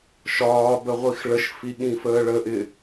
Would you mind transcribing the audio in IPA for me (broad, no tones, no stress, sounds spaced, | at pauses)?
ʃ ɒː b ə ʁʷ i x ɭ ə ʃ f i ɠ ĩ f əː ɭ ə ʔ ɪ